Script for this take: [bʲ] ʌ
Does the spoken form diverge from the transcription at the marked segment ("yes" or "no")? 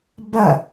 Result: yes